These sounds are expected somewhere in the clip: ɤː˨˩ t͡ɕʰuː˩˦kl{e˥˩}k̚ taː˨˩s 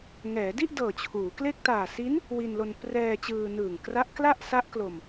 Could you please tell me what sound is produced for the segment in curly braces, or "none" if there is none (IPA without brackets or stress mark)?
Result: e˥˩